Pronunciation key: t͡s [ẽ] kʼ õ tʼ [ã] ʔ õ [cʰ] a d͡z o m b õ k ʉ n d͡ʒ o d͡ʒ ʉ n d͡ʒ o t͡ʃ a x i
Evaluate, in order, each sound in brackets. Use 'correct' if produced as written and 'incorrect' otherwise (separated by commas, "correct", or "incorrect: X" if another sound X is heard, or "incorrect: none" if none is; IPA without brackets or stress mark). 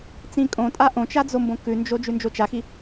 incorrect: ĩ, incorrect: a, incorrect: t͡ʃ